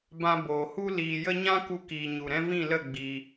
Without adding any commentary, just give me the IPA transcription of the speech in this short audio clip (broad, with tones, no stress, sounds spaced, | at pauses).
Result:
b ã˧ b oː˨ h u˦ l iː˨ j ə˧ ɲ ã˦ k u˧ k iː˨ ɲ u˨ ɾ ɛ̃˧ v ĩ˦˨ l ə˦˨ ɡ͡b i˧